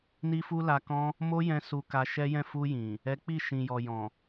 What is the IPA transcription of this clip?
n i˦ f u˦ l a˧ k ɔ̃˦ | m o˦ j ɛ̃˧ s u˧ k a˧ ʃ ɛ˦ j ɛ̃˦˨ f u˧ j ĩ˨ | ɛ˦ k͡p i˦˨ ʃ ĩ˨ j ɔ˨ j ɔ̃˨

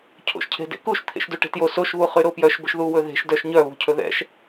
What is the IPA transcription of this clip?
cʰ o̰ ʃ cʰ e̤ d ḛ k u ʃ t̪ʰ ḛ ʃ d u ʈ e̤ t j o s o ʃ β u χ y ɾ o p j œ ʃ b ɵ ʃ ð u w ɵ ð e̤ ʃ d œ ʃ ɲ œ β ṳ cʰ ɵ ð ɛ̰ ʃ

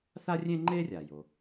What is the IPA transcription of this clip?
θ a˥ rʲ ẽ˥ ŋ͡ǃ e˥ rʲ a˨ j o˦

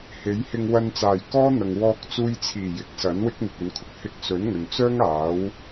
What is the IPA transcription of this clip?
h e˨˥ j h ɪ˧ ŋ w ɐ˧ n t͡s aː˨˩ j k ɔː˥ n̪ ɐ˨ ŋ w ɔː˧ k̚ t͡s uː˧ j t͡sʰ iː˨˩ j ɪ˨˥ k̚ s ɐ˨˥ n w ɪ˥ k̚ n̪ ɪ˨ k̚ ɵ˨ n kʰ ʊ˨ k̚ h ɪ˧ k̚ s ɵ˨˥ n ŋ ɵ˨ n t͡s œː˥ ŋ aː˨˥ w

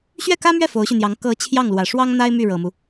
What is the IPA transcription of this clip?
ɕ ɥ ɛ˥˩ k ä˥ m ɥ ɛ˥˩ f o˧˥ ʊ̯ ɕ y˧ n̪ j ɑ˧˥ ŋ k ɤ˧˥ t͡ɕʰ j ɑ˥˩ ŋ l w ä˨˩ ʂ w ɑ˥ ŋ n̪ a˥ ɪ̯ m y˥˩ ɻ ɤ˨˩ m u˦

